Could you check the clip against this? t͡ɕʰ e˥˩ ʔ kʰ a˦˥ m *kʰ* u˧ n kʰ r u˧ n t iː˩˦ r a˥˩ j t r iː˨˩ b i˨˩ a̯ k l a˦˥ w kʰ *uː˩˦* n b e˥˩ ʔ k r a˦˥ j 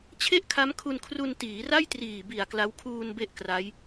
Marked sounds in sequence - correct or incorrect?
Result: correct, incorrect: uː˧

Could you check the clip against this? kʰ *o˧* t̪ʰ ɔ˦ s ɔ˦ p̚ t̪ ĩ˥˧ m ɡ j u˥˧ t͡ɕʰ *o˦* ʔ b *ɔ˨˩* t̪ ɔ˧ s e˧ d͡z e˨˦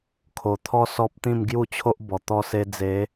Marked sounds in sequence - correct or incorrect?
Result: incorrect: o˨˩, correct, correct

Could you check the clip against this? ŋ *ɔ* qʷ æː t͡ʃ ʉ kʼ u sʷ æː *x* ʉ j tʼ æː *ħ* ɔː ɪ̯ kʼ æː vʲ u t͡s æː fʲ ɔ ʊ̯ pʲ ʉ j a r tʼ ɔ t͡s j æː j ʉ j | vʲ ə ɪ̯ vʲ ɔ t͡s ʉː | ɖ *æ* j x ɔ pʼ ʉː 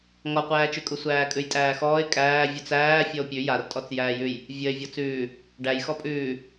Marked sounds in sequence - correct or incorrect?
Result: correct, incorrect: kʼ, incorrect: x, correct

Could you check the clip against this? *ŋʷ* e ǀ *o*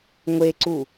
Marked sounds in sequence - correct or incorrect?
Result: correct, incorrect: u

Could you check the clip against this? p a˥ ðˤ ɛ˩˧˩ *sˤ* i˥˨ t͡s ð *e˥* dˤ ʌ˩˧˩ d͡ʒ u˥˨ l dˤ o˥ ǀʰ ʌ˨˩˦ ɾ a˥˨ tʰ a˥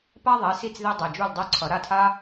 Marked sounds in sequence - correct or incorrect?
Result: incorrect: s, correct

